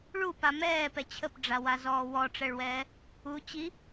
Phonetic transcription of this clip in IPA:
ɭupa mɛːpɛ t͡ɕʰəpɖ͡ʐawazɔː wɔʈ͡ʂɛɭwɛː | u t͡ɕi

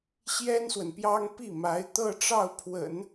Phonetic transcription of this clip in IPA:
ɕjɛ˥nswə˨npjɑ˥ŋ pi˥˩ma˧˥ɪ̯ t̪ɤ˥˧ʈ͡ʂɑ˥˩ʊ̯pʰwə̰˨˩˦n

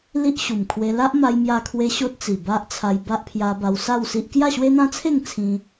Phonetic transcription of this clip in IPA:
li˦ʔɕu˨˩mkʰwe˧ la˦ʔma˧jmja˧kʰwe˧ ɕo˦t̚t͡si˨˩ba˦ʔt͡sʰa˧j ba˦ʔpʰja˧ba˧wsa˥˧w si˦ʔ kja˥˧ɕwe˦n̪ã˦t͡sʰe˥˧ŋ t͡sʰĩ˧

